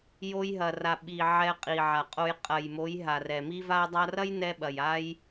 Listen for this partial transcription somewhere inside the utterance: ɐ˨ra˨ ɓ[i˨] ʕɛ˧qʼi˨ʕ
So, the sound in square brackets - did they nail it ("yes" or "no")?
yes